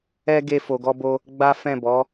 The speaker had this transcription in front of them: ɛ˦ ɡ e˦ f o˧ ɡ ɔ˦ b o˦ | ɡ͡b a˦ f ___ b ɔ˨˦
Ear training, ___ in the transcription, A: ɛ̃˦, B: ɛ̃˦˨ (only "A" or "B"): B